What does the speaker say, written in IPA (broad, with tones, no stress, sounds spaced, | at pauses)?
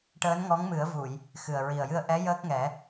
ʈ əː˧˥ n ŋ ɔ˧˥ ŋ m ɨ˨˩˦ ə̯ v u˨˩˨ j | x ɨ˨˩ ə̯ ɹ i˨˩ ə̯ j ɨ˧ ə̯ ʔ ɛ˧˥ j əː˦˥ k̚ ŋ ɛ˨˩˦